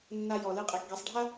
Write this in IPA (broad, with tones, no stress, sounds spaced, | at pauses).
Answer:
nː a˥ j ɔ˧ l ɨ˥ qʼ ɛ˧ k ɡ ɛ˧ sˤ ɖʱ a˥